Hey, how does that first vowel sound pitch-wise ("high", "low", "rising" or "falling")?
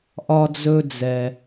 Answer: low